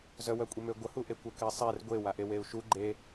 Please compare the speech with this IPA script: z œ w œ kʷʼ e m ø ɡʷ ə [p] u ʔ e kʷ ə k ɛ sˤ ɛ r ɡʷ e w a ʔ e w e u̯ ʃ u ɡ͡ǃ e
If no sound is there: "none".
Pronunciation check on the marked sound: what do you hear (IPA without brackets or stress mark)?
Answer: h